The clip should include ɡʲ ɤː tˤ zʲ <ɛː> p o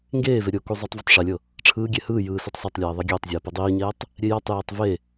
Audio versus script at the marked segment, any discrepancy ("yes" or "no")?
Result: no